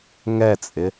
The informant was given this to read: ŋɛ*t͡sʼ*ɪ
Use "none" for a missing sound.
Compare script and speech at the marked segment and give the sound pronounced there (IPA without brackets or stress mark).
t͡sʼ